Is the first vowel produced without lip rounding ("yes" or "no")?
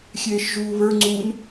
yes